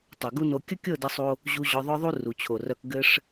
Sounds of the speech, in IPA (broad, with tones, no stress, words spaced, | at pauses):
tˤɤ˨ɡu˦no˧ kʲə˦kʲɤ˦˨də˧sˤo˧ | ʑu˧ ʑœ˧ðˤœ˦ðˤu˦ ru˨t͡ɕʰo˨rœ˧k ɡɘ˦ʂ